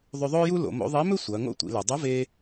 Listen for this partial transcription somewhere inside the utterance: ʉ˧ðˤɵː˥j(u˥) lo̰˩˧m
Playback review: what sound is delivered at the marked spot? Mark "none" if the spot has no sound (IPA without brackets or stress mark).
u˥